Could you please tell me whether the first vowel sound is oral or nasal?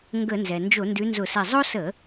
oral